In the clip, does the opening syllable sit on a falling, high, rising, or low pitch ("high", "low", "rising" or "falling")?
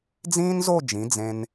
high